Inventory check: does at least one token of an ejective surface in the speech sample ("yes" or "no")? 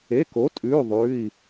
yes